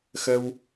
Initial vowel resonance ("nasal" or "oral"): oral